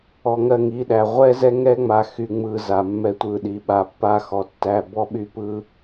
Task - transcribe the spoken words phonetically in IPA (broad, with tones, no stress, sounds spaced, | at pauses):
ɔ˨ ŋ ɜ˦˨ ŋ i˨˦ ɗ æ˨ ʁʷ ɛ˦ z ɛ˦ ŋ ɛ˦ ŋ͡m a˨ x y˨ ŋ͡m ɯ˨ z a˨ mː ɛ˦ tʷ ɯ˦˨ ɗ i˨ ɓ a˨ pː a˦ x ɔ˨ tː æ˦˨ b ɔ˦ ɓ y˦ p ɯ˦